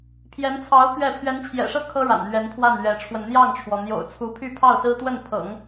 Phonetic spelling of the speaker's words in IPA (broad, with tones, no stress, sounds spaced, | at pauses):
pʰ j ɛ˧˥ n t͡sʰ ɑ˧˥ ʊ̯ t̪ ɥ ɛ˥˩ pʰ ɥ ɛ˧˥ n t͡ɕʰ j ɛ̰˨˩ ʂ ɤ˥˩ kʰ ɤ˥ ɻ a̰˨˩ n n̪ ɥ ɛ˧˥ n pʰ w a˥˩ n ɥ ɛ˧˥ ʈ͡ʂʰ w ə˧ n n̪ j ɑ˥˩ ŋ ʈ͡ʂʰ w ɔ˩ n̪ j o̰˨˩ ʊ̯ t͡sʰ u˧˥ pʰ y˥˧ pʰ ɑ˥˩ ʊ̯ s ɹ̩˥ t̪ w ə˥˩ n pʰ ɤ̰˨˩˦ ŋ